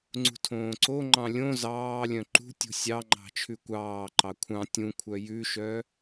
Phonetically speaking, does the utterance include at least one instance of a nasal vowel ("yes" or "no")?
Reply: yes